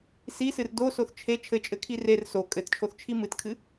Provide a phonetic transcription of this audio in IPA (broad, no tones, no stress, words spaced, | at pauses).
sisɨr dosoθ t͡ʃʰe t͡ʃʰɘt͡ʃʼɘkʰi rer so kʼɘtt͡ʃʰoθt͡ʃʰi mɨtkʰɨ